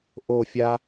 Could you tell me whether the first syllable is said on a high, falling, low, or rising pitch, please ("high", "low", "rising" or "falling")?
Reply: falling